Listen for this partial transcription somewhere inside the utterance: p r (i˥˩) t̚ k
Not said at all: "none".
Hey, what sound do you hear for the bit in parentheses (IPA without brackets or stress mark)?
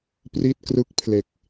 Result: i˥˩